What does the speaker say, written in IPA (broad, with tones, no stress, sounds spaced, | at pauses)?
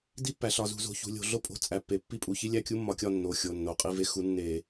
d i˥ pː æ˩˧ ɬ ɒ˩˧˩ z ṳ˧˩˧ z o̤˩˧ ç ṳ˩˧ lʲ o̤˩˧ ɮ o˥˨ pʼ o̤˥˨ t͡sʼ æ˩˧ pː e˩˧ pː i˥˨ pʼ u˧˩˧ ç i˥ lʲ æ˥˨ kʲ u˥ mː ɒ˧˩˧ kʲ ɒ˥˨ nː o˩˧˩ xʲ o˩˧˩ nː o˩˧˩ qʼ i˥˨ v e˥ x u˩˥ nː e˧˩˧